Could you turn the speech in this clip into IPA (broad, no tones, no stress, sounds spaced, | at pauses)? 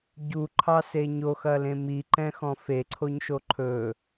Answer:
ɟ u ǃʰ ɑ s e ɲ o x ɐ l ẽ m i ǃ ɛ̃ x ɔ̃ f e ǀʰ o ɲ ʃ o ǃʰ ɵ